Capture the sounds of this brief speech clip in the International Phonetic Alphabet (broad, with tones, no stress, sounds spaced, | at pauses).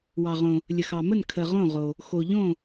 w ɑ˩ ʁ õ˩ | lʲ ə˩ x ɑ˩ m ə˥˩ n kʰ ə˩ ʁ õ˥˩ ʁ o˩ | x o˩ ʎ õ˥˩